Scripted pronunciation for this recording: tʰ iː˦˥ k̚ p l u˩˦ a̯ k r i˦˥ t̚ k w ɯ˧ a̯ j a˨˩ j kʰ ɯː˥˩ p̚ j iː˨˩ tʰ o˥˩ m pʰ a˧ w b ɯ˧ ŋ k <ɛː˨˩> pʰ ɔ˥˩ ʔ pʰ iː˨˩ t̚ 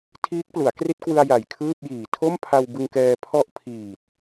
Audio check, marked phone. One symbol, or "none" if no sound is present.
ɛː˧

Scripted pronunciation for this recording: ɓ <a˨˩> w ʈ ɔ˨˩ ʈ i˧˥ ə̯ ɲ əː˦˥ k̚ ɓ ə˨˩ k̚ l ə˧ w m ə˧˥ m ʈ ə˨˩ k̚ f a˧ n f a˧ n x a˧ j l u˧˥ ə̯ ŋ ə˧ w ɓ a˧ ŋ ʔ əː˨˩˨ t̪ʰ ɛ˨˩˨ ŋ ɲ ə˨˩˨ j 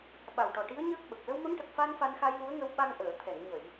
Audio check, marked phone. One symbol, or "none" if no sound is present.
a˨˩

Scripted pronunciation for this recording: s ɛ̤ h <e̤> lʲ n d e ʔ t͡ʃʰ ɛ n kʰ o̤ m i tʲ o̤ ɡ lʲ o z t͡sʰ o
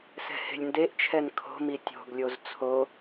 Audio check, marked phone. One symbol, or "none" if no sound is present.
e̤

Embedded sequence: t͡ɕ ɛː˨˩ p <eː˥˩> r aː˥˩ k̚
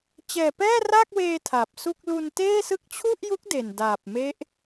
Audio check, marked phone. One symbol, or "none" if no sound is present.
ɛː˥˩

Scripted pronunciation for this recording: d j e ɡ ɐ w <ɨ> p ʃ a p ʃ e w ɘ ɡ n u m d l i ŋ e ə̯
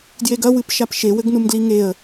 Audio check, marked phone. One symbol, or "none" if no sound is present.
ɨ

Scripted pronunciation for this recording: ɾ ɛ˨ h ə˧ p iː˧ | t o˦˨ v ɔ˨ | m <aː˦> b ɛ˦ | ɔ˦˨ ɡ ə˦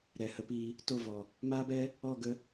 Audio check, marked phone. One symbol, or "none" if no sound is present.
aː˦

